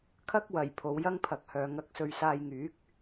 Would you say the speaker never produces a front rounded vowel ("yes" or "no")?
no